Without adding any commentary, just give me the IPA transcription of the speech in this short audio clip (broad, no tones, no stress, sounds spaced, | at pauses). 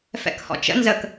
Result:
f ɛ̰ k h ɔ̰ t͡ʃ ə̰ n z ə k